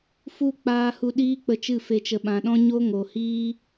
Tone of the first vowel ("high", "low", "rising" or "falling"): falling